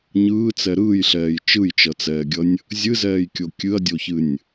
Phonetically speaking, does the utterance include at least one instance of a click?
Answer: no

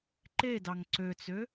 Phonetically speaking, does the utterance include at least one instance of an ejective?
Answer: no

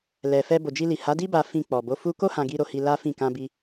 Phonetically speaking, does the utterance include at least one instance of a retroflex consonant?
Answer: no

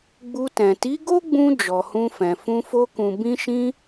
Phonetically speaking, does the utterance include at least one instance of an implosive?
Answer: no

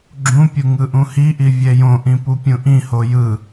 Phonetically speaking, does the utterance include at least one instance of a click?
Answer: yes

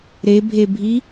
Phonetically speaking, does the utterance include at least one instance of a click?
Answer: no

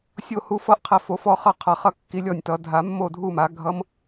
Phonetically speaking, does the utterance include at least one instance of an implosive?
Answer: no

